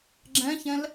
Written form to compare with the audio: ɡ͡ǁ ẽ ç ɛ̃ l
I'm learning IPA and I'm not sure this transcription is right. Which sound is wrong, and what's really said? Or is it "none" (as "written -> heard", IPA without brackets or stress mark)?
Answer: ẽ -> ɛ̃